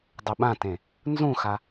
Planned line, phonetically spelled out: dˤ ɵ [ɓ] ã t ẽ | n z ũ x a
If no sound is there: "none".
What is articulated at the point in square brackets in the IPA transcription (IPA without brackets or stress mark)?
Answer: ɓ